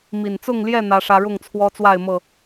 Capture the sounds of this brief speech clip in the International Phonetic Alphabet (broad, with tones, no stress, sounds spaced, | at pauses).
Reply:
m i˨˩ n t͡s ʊ˥˨ ŋ l j ɛ˥˨ n̪ ä˦ ʂ ä˦ ɻ ʊ˥˨ ŋ t͡sʰ w ɔ˦ t͡s w a˥˨ ɪ̯ m ɤ˥˨